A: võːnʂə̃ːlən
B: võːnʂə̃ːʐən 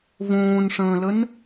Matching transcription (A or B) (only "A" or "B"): A